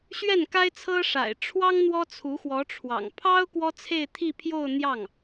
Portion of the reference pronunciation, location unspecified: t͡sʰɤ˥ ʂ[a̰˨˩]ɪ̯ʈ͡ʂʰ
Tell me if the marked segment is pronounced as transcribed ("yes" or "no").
yes